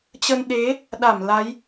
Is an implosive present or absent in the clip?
present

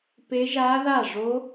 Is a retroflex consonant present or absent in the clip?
present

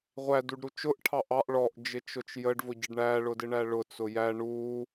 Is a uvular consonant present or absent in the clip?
present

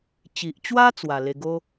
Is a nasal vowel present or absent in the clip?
absent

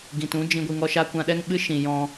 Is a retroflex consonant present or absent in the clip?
absent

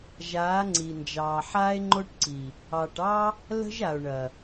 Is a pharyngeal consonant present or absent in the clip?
present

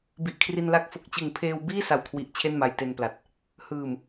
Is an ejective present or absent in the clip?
absent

